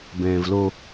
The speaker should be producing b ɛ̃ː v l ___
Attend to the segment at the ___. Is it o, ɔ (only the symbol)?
o